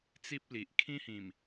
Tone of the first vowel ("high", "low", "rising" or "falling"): high